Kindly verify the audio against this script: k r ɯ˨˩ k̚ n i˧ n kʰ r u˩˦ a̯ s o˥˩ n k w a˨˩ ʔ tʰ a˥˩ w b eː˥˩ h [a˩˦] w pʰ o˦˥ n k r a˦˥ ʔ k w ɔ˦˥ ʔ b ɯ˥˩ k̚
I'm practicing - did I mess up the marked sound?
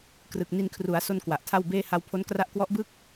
yes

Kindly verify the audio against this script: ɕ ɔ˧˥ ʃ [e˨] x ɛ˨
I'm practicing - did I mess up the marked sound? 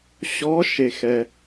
no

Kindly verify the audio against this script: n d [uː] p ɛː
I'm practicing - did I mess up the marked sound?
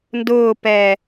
yes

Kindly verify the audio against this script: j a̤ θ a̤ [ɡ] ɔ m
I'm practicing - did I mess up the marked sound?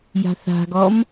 no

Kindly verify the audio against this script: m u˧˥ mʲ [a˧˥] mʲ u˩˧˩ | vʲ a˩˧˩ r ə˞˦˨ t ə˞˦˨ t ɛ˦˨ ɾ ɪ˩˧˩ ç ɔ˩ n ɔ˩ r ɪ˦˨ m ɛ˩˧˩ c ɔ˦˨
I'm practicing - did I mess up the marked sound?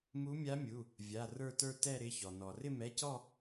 no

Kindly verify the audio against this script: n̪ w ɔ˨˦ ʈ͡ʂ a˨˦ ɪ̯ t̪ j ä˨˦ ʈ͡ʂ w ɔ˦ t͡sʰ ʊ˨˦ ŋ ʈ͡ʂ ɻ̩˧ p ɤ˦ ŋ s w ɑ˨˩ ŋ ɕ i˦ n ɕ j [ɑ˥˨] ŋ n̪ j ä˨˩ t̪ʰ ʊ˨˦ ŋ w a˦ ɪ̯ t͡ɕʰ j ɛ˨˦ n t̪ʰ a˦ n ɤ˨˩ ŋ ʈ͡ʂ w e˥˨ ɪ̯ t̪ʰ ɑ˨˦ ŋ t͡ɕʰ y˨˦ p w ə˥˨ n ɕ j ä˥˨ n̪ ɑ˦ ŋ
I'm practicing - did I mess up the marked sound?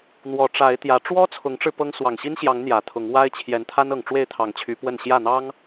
yes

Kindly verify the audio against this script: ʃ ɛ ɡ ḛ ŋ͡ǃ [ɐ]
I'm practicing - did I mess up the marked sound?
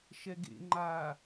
yes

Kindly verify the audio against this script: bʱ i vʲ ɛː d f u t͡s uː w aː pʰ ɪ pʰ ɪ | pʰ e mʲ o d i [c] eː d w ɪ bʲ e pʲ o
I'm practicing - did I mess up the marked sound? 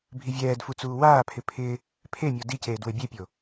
no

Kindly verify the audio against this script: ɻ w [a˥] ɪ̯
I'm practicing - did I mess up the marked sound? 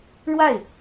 yes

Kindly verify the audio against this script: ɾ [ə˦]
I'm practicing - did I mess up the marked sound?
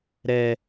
yes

